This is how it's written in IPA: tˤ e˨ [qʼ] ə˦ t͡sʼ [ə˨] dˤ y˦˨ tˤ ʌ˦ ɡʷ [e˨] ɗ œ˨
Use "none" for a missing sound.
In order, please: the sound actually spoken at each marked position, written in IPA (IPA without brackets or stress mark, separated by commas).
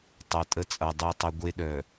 tʼ, ʌ˨, e˦